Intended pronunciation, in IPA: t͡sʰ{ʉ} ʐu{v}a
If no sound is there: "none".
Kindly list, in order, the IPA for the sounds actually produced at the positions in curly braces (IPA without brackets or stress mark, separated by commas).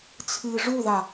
ɨ, ð